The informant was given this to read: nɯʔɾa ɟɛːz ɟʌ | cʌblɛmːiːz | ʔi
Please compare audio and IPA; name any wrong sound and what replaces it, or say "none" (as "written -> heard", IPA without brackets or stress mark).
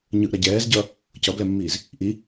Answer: n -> ɲ